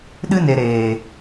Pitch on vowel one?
high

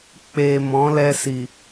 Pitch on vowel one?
low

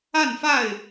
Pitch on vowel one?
falling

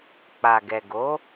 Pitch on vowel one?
low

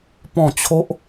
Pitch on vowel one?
falling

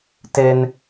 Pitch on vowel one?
high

